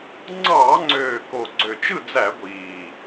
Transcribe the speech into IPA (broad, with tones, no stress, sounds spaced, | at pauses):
ŋ͡ǀ ɑː˧˩˧ ŋ͡ǀ øː˨˩ k o˨˩ ɡ͡ǀ ø˨˩ t͡ʃ ɯ˥˨ d͡z æ˧˩˧ ɡʷ iː˨˩